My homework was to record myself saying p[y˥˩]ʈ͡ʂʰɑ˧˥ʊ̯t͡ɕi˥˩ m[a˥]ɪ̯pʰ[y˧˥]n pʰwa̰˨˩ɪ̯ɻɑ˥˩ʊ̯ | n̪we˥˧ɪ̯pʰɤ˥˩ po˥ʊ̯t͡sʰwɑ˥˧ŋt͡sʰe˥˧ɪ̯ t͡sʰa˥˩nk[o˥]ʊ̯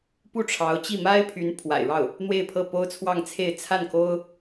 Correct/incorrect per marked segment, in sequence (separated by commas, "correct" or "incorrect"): incorrect, correct, correct, correct